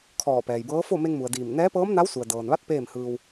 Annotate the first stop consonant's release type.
aspirated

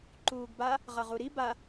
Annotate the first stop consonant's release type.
click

